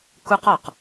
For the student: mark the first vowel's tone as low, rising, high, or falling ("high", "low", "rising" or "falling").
high